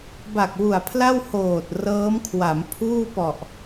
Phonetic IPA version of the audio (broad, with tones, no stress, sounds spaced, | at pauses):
b a˨˩ k̚ w u˨˩ a̯ pʰ l a˥˩ w h oː˨˩ t̚ r ɤː˦˥ m kʰ w a˩˦ m pʰ uː˥˩ p ɔ˨˩ ʔ